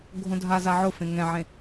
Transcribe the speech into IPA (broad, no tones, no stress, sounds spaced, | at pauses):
ɡʱ õ dʱ a z a ʕ ʊ f ẽ ŋ ɛ̃ ʕ ẽ